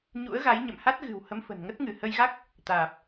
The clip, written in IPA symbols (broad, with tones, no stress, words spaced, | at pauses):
ɲṵ˧˥ə̯ɣa˨˦j ɲə̰˧˨mha˦˥t̚ ɣɨ̤˨˩w hə˨˦mfə̤˨˩n ŋə˦˥t̚ŋɨ˧˩ hə˧jɣa˦˥k̚ | t̪aː˨˩p̚